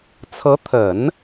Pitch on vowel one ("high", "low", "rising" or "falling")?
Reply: rising